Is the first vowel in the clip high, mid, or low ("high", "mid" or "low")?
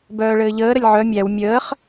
mid